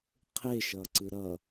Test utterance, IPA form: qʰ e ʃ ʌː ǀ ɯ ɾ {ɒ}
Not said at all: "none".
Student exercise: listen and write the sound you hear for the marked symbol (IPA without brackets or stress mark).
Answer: ʌ